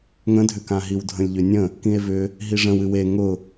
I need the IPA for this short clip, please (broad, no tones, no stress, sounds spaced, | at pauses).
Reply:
ŋ ə̃ dʱ ʏ k ã ɦ i w dʱ ə̃ lʲ ʎ ʏ nʲ ə̃ | k ĩ e̯ v ʏ | ɦ i ʐ ə̃ w ɨ w e ŋ ʊ